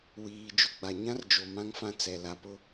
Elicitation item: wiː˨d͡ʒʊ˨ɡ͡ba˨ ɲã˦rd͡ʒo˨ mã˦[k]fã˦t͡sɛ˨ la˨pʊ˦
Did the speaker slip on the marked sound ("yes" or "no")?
yes